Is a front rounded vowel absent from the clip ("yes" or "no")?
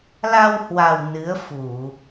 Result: yes